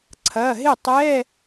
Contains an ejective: no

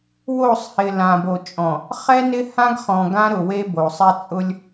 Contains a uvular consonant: yes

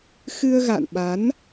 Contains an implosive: yes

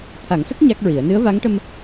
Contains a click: no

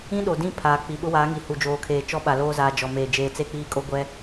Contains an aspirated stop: yes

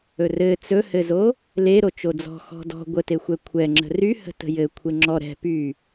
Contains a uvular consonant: no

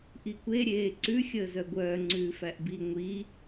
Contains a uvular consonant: no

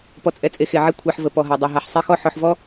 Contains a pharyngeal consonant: yes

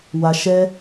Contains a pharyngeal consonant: no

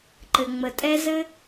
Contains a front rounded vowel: no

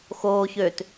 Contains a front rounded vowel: yes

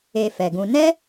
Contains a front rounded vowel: no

